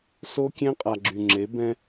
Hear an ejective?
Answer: yes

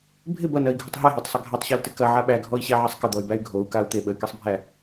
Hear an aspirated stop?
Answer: no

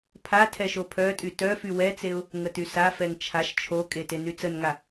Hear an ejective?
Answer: yes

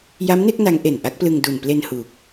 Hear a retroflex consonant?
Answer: no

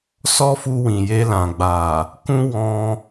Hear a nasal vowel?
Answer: yes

